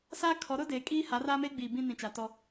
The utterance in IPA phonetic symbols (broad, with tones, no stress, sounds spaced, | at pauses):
s aː˦ kʰ ɔ˨˦ ɾ ʊ˦ d eː˨ kʼ iː˦ h a˨˦ r aː˦ m e˦ ɡ͡b iː˨ b ĩ˦ n ĩ˨ t͡ʃ a˨ t ɔ˦